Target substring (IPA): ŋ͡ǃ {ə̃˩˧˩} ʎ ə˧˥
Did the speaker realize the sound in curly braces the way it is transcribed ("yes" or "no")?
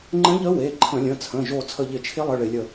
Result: no